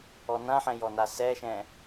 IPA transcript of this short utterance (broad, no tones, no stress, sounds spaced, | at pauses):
ɔ n ã ħ ɛ̃ j ɔ n a s ɛ ʃ ɛ̃